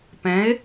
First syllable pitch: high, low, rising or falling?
rising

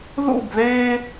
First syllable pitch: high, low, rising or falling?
falling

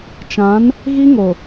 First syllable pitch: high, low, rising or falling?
rising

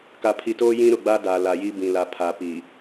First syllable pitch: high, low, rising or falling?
low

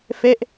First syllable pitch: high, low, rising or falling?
falling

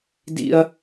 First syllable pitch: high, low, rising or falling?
high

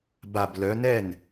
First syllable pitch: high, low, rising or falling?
falling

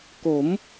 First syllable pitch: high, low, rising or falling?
rising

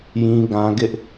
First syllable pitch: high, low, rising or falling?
high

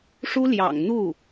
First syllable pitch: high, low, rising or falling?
high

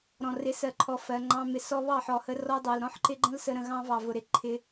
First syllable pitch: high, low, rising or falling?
low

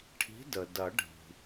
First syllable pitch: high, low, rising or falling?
rising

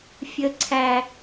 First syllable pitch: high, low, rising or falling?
low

